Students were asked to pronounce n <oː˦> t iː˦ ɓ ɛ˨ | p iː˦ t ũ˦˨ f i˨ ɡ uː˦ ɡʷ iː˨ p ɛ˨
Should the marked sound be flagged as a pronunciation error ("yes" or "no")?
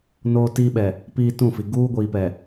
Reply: no